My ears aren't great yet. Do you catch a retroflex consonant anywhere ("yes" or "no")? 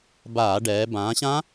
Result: yes